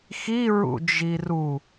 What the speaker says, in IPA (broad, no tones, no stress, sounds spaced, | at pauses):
x i ɹ ṵ d͡ʒ i r u